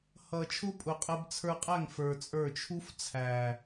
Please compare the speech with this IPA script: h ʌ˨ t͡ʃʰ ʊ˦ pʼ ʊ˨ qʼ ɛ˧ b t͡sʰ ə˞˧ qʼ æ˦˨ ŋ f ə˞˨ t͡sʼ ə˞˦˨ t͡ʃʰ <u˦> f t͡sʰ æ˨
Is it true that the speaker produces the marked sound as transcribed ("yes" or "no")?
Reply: yes